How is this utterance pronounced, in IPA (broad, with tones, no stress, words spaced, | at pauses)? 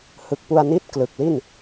hɯ˨˩k̚pu˧a̯ni˦˥t̚ klɯ˨˩k̚li˥˩n